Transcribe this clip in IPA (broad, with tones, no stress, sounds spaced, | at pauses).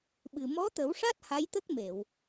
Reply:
ɓ ɨ˨˩ m ɔ˧˥ t̪ ə˨˩˦ w ʂ a˦˥ t̚ h a˧˥ j t̪ ə˦˥ k̚ m e˨˩˨ w